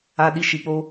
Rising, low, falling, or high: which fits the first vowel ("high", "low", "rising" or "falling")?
high